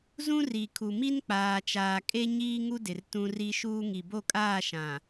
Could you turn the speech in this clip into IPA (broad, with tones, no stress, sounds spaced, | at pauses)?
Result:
z ũ˦ r i˨ kʰ u˨ m i˦ n k͡p aː˨ t͡ʃ aː˨ kʼ e˦ ɲ iː˦ ŋ u˦ d ɪ˨ r t ũ˦ r i˦ ʃ uː˦ ŋ i˨ b o˦˨ kʼ aː˦˨ ʃ ã˨